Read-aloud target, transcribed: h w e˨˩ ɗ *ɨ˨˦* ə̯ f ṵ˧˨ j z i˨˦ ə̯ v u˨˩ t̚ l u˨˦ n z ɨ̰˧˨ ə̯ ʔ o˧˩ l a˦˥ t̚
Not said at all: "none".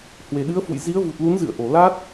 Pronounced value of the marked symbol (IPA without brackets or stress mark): ɨ˨˦